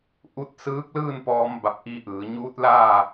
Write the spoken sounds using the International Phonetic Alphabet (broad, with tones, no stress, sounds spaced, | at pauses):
ʔ u˧ t̚ s ɯː˧˥ k̚ l ɯː˥˨ n p ɔː˧˥ m b a˧ p̚ ʔ iː˧˥ ʔ ɯː˩˧ ɲ uː˧˥ t̚ l aː˥˨